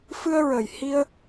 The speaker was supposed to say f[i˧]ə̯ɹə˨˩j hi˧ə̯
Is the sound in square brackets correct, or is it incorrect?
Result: incorrect